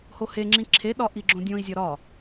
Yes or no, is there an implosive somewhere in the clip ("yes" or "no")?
yes